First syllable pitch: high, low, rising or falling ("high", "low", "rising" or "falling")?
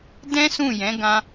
high